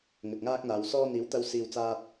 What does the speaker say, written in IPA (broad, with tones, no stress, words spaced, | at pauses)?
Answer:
ŋɵ˨t̚ŋaː˥k̚n̪aː˨˧wsɔː˥ n̪iː˨˥wt̪ɐ˧wsiː˨wt͡saː˧t̚